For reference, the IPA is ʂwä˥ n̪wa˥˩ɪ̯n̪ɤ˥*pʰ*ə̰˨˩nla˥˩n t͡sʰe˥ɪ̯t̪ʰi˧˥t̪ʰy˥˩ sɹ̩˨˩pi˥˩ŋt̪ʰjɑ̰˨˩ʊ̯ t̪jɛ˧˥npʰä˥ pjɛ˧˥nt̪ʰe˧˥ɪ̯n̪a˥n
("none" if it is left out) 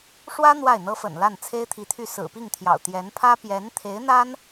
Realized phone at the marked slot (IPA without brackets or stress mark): f